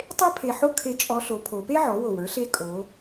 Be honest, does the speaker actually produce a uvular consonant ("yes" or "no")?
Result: no